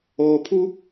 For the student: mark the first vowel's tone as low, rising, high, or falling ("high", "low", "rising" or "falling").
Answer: low